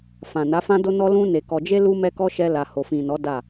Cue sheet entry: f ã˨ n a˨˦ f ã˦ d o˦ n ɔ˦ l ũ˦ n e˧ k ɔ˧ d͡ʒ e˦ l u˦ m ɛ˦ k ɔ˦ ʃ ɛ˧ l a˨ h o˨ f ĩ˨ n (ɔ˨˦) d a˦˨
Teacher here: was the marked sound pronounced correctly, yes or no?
yes